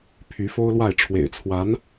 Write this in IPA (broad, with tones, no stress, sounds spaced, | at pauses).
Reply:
pʰ y˧˥ f o˥ ʊ̯ l w a˥˩ ɪ̯ ʈ͡ʂʰ w ḛ˨˩ ɪ̯ t͡sʰ w a˧˥ n